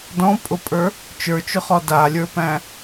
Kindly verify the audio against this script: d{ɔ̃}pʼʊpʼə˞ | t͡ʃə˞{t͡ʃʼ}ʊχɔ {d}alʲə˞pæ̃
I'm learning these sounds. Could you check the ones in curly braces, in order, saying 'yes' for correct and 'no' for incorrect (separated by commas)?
yes, no, yes